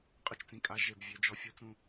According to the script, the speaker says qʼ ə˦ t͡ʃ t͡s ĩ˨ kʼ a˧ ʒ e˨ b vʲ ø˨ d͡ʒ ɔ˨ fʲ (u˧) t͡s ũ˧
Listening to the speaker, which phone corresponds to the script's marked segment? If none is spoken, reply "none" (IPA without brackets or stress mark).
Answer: u˧